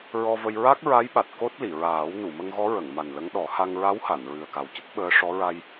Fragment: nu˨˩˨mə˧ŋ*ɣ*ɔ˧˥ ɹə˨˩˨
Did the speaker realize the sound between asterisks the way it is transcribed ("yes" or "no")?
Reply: yes